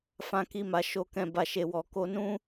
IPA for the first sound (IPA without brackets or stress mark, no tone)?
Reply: f